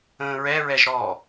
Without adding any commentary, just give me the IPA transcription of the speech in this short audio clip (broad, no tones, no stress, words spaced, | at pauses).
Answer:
ə̃ːɹɛ ɹɛʒɾɔ